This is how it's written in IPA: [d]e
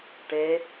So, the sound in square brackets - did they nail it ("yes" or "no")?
no